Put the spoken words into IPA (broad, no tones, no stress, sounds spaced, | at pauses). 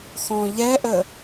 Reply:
x ɔ̃ ʎ ɛ ʔ ə